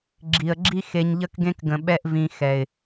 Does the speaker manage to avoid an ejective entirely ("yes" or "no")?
yes